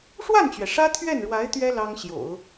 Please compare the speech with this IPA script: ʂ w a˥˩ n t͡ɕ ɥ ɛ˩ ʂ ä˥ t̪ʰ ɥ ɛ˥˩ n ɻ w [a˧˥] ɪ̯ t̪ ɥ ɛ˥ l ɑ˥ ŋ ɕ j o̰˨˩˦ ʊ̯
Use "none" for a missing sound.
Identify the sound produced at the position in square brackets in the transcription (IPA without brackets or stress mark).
a˧˥